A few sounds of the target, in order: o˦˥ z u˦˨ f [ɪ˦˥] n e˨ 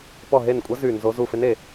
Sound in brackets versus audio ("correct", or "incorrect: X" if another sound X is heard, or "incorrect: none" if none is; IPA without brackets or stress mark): correct